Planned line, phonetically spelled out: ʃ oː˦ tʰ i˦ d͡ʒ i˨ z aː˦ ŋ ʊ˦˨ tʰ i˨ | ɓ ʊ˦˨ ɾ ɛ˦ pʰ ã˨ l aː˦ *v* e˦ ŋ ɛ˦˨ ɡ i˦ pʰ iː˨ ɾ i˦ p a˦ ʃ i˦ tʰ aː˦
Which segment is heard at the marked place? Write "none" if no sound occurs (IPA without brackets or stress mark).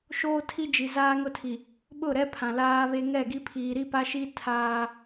β